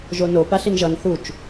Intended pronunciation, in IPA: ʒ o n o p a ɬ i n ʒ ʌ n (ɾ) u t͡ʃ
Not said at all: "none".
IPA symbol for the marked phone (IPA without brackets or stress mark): θ